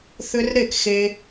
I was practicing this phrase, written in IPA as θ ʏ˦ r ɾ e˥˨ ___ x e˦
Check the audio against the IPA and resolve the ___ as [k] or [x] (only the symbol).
k